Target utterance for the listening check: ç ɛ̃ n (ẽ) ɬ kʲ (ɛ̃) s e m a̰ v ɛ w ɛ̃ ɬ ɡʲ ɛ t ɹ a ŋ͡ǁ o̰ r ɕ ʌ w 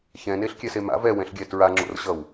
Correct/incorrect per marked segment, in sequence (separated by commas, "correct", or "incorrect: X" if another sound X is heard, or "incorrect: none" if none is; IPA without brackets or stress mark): incorrect: e, incorrect: ɛ